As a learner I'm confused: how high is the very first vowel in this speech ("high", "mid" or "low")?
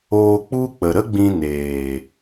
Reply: mid